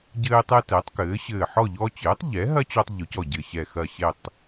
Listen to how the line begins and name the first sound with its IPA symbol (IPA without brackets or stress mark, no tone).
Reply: ɟ